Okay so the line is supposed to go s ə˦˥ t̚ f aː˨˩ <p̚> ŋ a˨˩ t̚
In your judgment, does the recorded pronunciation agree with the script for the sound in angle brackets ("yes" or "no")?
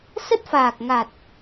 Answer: no